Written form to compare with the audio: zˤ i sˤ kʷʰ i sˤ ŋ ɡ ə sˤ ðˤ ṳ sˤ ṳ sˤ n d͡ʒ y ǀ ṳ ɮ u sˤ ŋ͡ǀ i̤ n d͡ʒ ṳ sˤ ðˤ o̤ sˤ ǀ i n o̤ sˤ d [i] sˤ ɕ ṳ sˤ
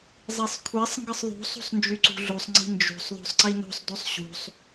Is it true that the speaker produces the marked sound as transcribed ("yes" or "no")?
no